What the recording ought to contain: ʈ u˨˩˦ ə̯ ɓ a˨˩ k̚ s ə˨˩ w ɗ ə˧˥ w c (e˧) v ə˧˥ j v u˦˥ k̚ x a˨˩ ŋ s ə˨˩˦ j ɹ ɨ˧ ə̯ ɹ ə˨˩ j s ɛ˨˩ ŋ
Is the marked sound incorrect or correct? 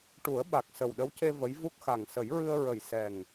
correct